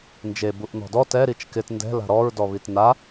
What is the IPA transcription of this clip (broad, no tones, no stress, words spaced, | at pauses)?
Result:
nd͡ʒebuʔ nɔ̤dɔ tɛ ɾit͡ʃkɪt ndɛ̤ la̤ɾɔɹdɔβit na